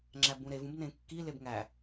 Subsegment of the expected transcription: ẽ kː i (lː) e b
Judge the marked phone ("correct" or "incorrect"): incorrect